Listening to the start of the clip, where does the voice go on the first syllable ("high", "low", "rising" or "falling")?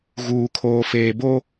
low